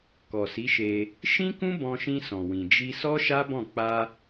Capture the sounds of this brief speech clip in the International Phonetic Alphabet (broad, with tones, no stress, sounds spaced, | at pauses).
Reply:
k ɔ˨ s i˨˦ ʃ e˧ | ʃ ĩ˦ k ũ˦ b ɔ̃˧ ʃ ĩ˧ s ɔ̃˨ w ĩ˨ d͡ʒ i˧ s ɔ˦ ʃ a˦ b ɔ̃˦˨ k͡p a˧